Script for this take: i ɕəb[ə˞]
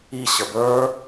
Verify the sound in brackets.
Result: correct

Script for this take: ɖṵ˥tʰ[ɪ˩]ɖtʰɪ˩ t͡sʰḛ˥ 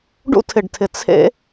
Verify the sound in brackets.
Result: correct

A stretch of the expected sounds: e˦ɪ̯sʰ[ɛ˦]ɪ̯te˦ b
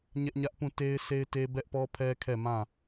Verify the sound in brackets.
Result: incorrect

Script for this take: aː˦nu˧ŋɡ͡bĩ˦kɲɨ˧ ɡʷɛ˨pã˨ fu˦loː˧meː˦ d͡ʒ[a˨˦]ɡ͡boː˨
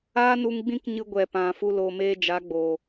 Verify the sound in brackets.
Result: correct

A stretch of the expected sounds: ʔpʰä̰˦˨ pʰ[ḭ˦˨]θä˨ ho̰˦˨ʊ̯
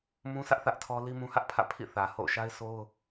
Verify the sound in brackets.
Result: correct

